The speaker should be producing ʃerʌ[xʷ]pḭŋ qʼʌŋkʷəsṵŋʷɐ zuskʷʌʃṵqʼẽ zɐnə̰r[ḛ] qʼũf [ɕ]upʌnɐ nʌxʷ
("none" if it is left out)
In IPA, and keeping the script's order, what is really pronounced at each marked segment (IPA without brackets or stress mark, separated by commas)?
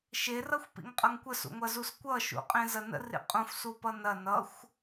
xʷ, ḭ, s